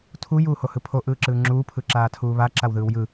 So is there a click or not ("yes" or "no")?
yes